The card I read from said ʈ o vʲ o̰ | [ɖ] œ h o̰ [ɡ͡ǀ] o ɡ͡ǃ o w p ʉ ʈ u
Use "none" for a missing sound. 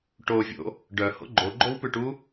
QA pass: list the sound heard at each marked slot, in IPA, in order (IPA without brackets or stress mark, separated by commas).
ɖ, ɡ͡ǃ